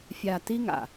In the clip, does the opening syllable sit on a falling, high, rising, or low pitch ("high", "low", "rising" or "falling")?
low